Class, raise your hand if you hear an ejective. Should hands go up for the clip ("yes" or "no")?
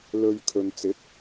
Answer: no